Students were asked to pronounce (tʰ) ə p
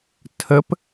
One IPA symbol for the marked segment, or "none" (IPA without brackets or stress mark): tʰ